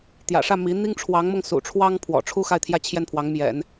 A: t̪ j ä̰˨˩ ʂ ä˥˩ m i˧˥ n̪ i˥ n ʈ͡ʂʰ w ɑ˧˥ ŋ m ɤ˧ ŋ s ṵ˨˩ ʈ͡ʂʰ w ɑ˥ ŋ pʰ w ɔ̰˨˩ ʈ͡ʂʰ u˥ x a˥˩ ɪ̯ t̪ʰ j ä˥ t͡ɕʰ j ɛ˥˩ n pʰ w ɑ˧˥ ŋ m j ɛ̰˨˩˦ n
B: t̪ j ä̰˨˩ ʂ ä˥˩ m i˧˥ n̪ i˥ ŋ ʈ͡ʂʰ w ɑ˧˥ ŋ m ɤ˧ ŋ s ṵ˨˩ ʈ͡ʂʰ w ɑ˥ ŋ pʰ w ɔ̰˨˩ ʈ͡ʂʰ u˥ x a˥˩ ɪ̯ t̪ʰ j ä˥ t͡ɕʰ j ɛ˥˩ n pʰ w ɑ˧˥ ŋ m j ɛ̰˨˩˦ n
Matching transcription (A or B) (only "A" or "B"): B